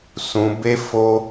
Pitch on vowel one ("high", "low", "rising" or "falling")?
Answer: low